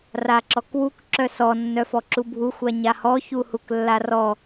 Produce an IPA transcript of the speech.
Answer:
r a ǁ ɔ k w u k ǁ œ s ɔ nː œ f ɔ ǁ u bʱ u xʷ a ɲ a h ɔ ç u h u k lː a r ɔ

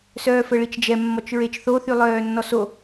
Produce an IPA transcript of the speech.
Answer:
s œː f ə ɭ i t͡ʃ d͡ʒ ɛ mː ɔ t͡ʃ ɹ e t͡ʃ θ o θ y lˠ œː nː ɔ s o

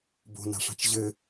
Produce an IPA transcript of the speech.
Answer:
b o̤ n a̤ ʂ a̤ t͡ʃ ʑ ɘ

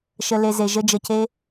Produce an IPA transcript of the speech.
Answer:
ʃ ə˧ l e˧ z e˨ ʒ ə˦ d͡ʒ ə˧ c e˦

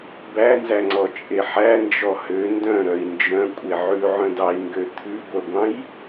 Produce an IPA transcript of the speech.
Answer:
b æ n z æ ŋ͡ǀ ɔ t͡ʃʼ e ħ æ n d͡ʒ ɔ h ø n d œ̃ ɾ œ i̯ n d͡ʒ œ̃ kʷʼ e ʕ ʉ ʕ œ̃ d ɑ i̯ ŋ ɡ ø t̪ʰ ʉ ɡʷ œ ɡʷ ɑ̃ j

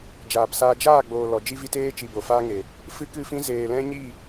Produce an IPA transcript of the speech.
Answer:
d͡ʒ aː˨ p s aː˧ d͡ʒ aː˦˨ ɡ͡b oː˨ l ɔ˨ d͡ʒ i˦ v i˦ t eː˦ t͡ʃ i˧ b o˨ f aː˦ ŋ e˨ | f ɨ˦ k ɨ˦˨ f ĩ˦ z eː˨ l ɛ̃˦ ɲ i˦˨

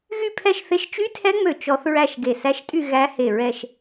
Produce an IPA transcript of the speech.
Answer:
ɣ y˥˧ pʰ ɛ˥˧ ʃ θ e˦˥ ʃ t͡ʃ y˦˥ tʰ ɛ˦˥ ŋ͡m ø˧˩ t͡ʃ ɔ˦˥ θ ɹ æ˥˧ ʃ ɡ e˧˩ s æ˦˥ ʃ tʼ y˥˧ ɣ æ˦˥ h e˧˩ ɹ ɛ˥˧ ʃ

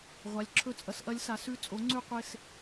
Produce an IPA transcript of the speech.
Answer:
ʁʷ a˩˥ lʲ ǁʰ ɵ˧˥ t͡sʼ ɐ˩˥ s ʔ ɐ˧˥ lʲ s a˩˥ s ʉ˧˥ t͡sʼ o˩˥ ŋ͡ǀ ʉ˦˨ qʷ e˦˨ s

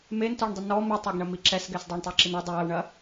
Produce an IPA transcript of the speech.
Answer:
m e n t ɔ ɳ dˤ i n ɔ m i tˤ a ɡ ɳ ɐ m i ǁ ɛ s ɡ ɛ s dˤ a ɳ tˤ e ǁ i n ɐ dˤ i w ɐ w ɳ ɐ

